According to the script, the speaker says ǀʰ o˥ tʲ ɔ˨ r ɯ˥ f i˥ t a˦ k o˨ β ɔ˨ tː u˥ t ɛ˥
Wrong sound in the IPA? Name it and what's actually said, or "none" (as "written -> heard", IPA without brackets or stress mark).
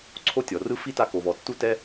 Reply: none